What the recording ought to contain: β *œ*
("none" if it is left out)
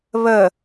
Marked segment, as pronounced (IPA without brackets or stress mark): ə